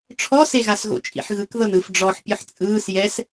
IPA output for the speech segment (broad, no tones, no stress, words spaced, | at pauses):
ʈ͡ʂʰɔseɣasɣo̰ t͡ʃʼḭħɣɯk ðɤnɯf ɖ͡ʐɔħ pʲɯħt͡sʼɯːs jɛs